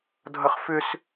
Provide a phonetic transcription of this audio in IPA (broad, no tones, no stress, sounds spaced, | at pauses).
dʱ ʌ χ f ʏ s